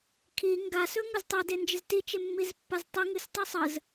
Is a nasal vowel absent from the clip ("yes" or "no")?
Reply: yes